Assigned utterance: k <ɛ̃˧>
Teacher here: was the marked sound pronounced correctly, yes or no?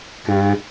yes